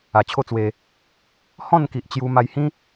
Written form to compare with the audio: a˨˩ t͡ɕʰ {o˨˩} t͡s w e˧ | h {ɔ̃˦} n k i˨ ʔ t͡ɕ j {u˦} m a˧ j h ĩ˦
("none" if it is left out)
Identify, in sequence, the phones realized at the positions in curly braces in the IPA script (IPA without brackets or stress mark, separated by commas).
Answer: o˦, ɔ̃˥˧, u˧